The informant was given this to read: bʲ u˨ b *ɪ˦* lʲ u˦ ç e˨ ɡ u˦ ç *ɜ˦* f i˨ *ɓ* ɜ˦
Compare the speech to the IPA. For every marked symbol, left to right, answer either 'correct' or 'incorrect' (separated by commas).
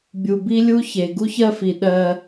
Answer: incorrect, correct, incorrect